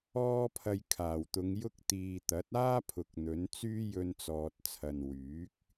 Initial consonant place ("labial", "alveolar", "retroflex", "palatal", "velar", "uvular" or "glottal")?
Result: labial